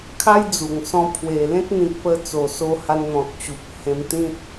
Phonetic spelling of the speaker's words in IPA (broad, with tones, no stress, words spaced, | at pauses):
kʰa˦jd͡zu˨˩ŋsɔ̃˧ pʰwe˨˩lẽ˦t̚ n̪ĩ˨k̚pə˧ t͡so˨˩so˧ ha˧nn̪ɔ̃˨t̚ t͡ɕu˨p̚hẽ˧m t̪ĩ˦t̚